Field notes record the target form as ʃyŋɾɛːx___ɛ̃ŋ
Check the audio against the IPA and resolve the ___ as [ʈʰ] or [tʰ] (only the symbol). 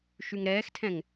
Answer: tʰ